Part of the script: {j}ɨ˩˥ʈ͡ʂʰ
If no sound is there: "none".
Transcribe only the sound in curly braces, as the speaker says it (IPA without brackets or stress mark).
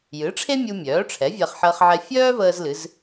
j